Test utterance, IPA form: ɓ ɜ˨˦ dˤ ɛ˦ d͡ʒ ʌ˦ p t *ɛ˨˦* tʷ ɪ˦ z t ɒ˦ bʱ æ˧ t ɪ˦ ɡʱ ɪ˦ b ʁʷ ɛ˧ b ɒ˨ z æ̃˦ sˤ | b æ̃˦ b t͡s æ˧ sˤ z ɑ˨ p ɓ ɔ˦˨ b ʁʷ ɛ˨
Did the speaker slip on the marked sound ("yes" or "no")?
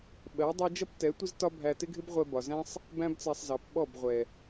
no